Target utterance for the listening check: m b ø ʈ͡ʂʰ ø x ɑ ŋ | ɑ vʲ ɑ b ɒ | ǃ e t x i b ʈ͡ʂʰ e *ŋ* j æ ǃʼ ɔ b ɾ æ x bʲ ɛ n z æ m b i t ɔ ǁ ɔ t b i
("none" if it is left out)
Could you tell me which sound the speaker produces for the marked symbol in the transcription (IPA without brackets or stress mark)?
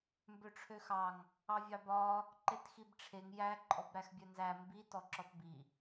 ŋ